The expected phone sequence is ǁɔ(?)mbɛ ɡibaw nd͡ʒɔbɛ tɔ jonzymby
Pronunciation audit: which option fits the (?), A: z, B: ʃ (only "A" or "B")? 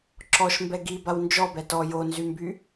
B